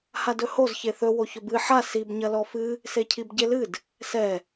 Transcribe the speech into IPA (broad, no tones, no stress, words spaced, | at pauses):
hadɵhoz çeθɵ woçɵbɨ ħa sib ɲɐlɔfɨ | secʰibɟelɨd | sɛ